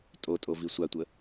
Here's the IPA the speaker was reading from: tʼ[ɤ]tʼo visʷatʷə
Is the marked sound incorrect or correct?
incorrect: o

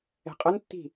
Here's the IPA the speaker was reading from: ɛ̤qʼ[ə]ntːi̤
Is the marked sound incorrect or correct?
correct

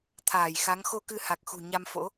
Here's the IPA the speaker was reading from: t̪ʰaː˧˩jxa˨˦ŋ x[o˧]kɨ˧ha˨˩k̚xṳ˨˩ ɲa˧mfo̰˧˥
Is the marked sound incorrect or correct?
correct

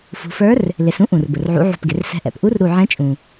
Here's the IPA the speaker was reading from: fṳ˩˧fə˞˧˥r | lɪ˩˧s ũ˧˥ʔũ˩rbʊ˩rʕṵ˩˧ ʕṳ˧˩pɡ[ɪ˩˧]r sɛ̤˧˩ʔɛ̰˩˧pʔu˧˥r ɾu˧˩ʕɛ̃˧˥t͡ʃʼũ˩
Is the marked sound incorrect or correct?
correct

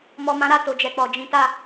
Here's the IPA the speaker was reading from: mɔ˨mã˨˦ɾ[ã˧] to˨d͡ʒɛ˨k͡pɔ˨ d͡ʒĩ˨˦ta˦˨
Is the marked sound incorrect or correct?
incorrect: a˧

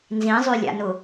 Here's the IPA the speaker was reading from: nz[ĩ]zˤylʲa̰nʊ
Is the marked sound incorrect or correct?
correct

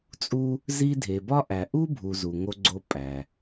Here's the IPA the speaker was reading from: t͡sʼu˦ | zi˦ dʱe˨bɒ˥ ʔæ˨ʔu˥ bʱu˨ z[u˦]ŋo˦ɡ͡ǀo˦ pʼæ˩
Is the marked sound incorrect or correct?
incorrect: u˨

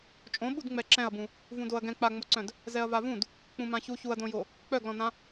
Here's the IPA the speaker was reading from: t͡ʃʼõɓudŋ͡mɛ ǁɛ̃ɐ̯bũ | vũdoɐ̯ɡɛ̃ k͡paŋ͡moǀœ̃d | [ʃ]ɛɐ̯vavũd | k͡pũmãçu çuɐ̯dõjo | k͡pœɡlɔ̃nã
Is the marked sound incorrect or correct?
incorrect: z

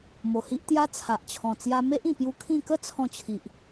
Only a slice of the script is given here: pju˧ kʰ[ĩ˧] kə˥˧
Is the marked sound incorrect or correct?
incorrect: ĩ˥˧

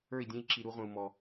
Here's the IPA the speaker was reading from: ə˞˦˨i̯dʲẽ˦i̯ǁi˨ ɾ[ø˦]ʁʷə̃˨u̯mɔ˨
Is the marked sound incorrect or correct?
incorrect: u˦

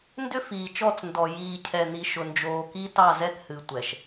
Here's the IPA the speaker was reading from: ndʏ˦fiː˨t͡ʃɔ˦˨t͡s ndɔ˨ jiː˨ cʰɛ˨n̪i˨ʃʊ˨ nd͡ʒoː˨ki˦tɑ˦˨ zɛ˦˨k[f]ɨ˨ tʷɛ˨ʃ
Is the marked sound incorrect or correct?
incorrect: h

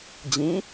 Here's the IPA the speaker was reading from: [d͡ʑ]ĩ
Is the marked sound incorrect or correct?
correct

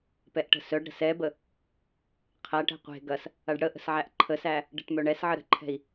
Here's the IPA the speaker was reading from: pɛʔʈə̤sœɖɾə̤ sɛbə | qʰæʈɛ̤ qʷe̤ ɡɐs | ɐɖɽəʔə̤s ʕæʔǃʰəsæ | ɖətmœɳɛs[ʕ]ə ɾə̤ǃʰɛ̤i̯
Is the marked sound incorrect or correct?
correct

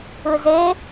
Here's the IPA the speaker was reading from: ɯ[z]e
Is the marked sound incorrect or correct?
correct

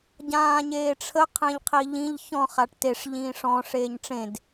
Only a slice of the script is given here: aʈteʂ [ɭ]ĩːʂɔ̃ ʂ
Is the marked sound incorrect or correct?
incorrect: ʎ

